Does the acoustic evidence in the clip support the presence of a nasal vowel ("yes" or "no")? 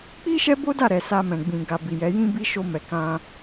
yes